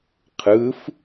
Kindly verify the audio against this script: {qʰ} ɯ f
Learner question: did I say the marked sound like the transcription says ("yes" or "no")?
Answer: yes